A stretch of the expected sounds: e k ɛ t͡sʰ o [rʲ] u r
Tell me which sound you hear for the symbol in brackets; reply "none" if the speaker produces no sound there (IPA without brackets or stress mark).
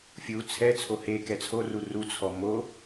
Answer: r